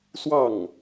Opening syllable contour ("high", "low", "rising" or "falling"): falling